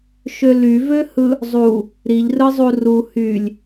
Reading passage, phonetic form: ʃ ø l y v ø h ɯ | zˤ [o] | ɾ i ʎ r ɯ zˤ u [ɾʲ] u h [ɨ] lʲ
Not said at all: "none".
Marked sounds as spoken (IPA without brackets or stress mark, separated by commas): u, r, y